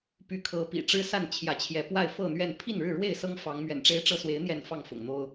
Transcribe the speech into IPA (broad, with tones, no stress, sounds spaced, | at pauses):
p y˨˦ kʰ ɤ˨˦ p ḭ˨˩ ʈ͡ʂ ɻ̩˦ s a˥˨ n t͡ɕʰ j ä˨˦ t͡ɕʰ j ɛ˨˦ p w a˥˨ ɪ̯ f ɤ˥˨ n̪ ɥ ɛ˥˨ n pʰ i˥˨ n ɻ ɻ̩˥˨ ɻ w e˥˨ ɪ̯ s ɤ˦ ŋ f ɑ˨˦ ŋ m ɥ ɛ̰˨˩ n ʈ͡ʂ e˦ ɪ̯ ʈ͡ʂ ɤ˥˨ s w e˨˦ ɪ̯ n̪ j ɛ˥˨ n f ɑ˥˨ ŋ f ʊ̰˨˩ ŋ n̪ o˦ ʊ̯